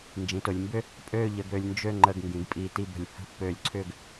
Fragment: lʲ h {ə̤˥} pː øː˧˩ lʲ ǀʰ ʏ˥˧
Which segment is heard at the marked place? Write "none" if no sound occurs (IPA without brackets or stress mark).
ə̤˥